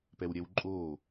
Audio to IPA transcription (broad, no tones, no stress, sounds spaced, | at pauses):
p ɛ w ɾʲ ɛ w ǃʼ oː